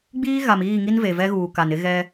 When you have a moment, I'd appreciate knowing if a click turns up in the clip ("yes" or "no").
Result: no